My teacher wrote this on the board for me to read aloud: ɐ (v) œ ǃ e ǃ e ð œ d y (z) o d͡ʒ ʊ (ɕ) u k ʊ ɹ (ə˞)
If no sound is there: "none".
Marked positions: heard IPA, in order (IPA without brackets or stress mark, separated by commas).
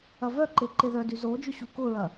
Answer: v, z, ɕ, ɐ